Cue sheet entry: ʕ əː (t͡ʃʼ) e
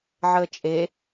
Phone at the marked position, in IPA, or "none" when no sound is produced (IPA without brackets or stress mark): t͡ʃʼ